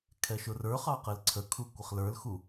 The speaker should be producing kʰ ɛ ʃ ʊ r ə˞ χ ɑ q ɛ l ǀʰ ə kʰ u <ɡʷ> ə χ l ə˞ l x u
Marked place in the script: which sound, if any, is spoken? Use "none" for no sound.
kʷ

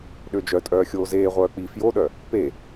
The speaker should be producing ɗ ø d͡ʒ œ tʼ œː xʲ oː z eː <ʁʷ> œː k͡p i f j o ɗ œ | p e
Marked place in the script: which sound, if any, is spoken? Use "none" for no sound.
ʁʷ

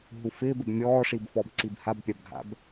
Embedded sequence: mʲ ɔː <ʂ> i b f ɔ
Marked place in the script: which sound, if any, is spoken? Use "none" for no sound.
ʂ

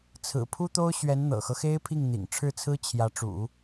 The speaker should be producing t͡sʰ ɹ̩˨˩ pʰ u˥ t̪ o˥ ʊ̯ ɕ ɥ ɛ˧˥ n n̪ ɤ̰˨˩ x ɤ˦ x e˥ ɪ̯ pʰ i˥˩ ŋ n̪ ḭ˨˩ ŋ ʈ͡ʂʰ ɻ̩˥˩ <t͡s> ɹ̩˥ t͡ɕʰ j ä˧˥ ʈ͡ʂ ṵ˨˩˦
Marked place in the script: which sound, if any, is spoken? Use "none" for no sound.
t͡sʰ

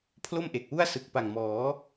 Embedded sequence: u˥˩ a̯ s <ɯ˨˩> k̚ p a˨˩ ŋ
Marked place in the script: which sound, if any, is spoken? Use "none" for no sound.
ɯ˨˩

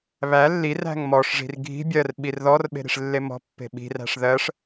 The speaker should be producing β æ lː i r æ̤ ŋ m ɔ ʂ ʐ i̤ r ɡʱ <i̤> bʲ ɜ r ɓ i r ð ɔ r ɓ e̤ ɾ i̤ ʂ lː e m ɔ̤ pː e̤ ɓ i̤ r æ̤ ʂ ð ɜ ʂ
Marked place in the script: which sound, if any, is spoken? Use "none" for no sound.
i̤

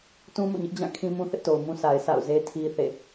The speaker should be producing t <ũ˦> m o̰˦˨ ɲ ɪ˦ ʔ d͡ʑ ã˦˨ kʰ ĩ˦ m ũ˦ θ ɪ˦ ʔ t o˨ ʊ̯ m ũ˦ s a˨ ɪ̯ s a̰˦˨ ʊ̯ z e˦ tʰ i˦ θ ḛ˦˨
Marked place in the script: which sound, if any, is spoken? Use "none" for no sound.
ũ˦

